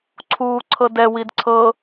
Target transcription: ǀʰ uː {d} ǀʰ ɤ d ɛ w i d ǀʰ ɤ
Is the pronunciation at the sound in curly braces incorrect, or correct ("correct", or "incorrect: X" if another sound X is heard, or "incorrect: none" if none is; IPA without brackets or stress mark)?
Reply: incorrect: none